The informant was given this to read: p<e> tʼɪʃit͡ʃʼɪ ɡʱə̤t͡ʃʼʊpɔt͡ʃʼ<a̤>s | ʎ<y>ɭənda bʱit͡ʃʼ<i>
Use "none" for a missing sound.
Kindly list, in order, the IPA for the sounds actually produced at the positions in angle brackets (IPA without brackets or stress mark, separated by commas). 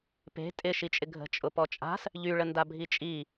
e̤, a̤, y, i